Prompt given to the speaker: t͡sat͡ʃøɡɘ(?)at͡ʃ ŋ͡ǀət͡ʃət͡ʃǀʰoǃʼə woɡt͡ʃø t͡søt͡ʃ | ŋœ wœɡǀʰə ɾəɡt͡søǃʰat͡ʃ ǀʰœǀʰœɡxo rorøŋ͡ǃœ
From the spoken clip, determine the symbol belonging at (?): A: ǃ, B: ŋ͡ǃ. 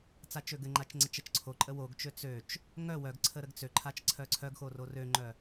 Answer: B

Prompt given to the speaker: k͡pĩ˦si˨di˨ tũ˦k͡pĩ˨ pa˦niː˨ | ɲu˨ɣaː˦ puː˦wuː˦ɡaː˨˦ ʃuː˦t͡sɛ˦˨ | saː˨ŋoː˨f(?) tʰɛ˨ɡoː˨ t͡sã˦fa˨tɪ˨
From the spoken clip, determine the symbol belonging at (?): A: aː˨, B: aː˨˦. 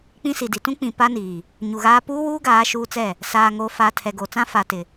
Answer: A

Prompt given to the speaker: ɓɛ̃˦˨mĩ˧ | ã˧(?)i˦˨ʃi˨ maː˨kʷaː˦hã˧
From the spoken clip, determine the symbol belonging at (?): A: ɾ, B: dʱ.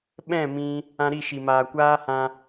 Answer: A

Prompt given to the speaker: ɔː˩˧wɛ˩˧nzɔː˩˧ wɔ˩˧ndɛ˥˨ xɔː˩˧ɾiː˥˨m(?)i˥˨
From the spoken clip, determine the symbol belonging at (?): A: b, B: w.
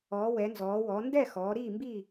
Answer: A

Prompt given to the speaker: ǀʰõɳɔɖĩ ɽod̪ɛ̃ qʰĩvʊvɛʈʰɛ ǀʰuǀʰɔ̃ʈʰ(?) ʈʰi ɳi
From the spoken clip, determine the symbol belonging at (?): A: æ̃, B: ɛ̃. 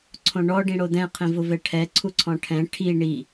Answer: B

